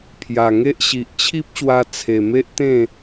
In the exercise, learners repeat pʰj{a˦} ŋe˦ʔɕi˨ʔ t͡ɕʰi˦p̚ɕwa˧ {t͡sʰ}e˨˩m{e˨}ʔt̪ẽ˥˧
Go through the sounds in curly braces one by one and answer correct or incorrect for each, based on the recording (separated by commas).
incorrect, correct, incorrect